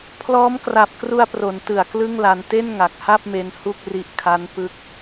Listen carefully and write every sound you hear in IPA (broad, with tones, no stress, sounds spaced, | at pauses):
pʰ l ɔː˦˥ m k r a˨˩ p̚ k r u˧ a̯ p r o˩˦ n t ɯ˨˩ a̯ k l ɯ˥˩ ŋ l a˧ n t e˥˩ n ŋ a˨˩ k̚ h a˥˩ p̚ m e˧ n h u˥˩ k̚ r i˦˥ ʔ kʰ a˦˥ n p ɯ˦˥ k̚